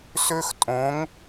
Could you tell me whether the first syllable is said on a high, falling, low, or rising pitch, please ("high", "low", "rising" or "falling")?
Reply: high